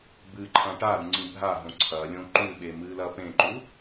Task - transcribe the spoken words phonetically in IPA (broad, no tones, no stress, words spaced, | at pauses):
bɨǃʰã ʈaɾu ŋ͡ǀĩbʱaɦõ ǀʰɐlʲõ ǃʉɓe mɨlɐpẽǃu